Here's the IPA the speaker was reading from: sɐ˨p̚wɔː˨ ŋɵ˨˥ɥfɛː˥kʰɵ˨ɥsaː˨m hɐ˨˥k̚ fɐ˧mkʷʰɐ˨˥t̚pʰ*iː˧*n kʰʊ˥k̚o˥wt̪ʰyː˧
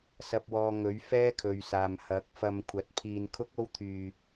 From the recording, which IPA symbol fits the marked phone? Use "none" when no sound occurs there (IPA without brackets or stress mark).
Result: iː˧